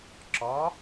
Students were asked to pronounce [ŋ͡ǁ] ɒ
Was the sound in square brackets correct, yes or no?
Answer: no